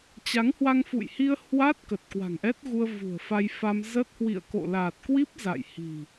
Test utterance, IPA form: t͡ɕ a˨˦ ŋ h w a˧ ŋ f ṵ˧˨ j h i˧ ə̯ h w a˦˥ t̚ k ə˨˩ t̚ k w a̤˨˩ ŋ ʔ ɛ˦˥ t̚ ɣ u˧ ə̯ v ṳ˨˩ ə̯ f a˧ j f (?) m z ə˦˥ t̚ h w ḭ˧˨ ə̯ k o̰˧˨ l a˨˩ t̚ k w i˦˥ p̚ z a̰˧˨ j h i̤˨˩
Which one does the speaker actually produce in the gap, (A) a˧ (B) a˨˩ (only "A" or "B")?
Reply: A